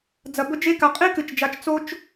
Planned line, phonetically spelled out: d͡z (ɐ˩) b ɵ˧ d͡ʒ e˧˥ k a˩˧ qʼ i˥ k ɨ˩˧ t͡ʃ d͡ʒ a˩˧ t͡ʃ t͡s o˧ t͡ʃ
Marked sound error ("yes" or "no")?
no